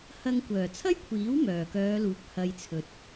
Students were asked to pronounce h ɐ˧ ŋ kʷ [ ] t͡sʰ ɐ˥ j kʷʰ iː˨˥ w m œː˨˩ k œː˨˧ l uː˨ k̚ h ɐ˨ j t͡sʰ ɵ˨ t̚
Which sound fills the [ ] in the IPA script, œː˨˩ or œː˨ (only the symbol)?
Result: œː˨˩